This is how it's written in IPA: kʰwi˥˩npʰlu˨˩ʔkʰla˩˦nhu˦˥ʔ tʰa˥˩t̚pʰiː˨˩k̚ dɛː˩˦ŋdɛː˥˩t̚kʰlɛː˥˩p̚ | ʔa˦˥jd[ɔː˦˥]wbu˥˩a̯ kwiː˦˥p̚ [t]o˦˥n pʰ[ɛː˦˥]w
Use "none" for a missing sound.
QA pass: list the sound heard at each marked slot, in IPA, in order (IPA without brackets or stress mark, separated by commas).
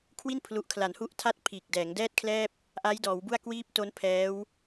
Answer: ɔː˩˦, t, ɛː˦˥